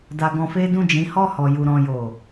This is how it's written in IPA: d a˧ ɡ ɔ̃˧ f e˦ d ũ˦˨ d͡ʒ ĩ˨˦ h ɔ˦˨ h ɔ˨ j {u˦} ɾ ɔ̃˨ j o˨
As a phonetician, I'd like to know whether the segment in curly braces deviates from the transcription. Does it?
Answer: yes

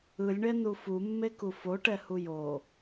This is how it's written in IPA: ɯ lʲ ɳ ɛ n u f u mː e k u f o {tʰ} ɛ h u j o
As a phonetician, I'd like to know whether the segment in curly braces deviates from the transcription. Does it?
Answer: yes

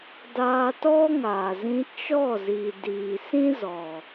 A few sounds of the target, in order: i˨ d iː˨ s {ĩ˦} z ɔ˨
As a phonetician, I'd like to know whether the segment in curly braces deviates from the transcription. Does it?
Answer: no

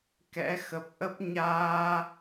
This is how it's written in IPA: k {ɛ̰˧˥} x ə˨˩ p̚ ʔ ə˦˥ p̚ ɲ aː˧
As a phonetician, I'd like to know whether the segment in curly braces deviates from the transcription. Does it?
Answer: no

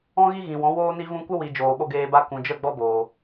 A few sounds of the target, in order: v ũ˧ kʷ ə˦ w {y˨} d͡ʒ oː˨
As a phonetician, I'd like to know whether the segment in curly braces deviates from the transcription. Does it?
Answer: yes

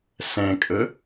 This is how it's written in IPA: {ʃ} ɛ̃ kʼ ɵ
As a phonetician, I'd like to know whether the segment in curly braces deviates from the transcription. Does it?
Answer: yes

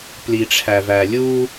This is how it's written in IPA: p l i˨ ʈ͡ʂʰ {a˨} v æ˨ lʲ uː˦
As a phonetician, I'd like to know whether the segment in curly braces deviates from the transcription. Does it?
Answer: yes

